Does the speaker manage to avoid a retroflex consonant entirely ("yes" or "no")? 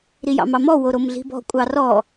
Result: yes